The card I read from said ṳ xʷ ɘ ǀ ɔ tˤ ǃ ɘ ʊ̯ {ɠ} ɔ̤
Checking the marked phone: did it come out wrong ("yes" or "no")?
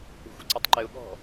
no